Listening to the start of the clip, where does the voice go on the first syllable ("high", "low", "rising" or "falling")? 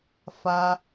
low